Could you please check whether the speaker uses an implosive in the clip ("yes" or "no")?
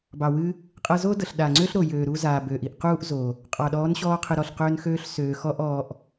yes